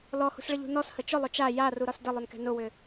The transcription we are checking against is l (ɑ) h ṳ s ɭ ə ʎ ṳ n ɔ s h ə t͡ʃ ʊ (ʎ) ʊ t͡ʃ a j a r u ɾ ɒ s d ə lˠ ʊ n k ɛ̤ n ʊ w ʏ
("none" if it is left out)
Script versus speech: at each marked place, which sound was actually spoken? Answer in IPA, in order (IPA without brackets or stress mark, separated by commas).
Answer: ɔ, lˠ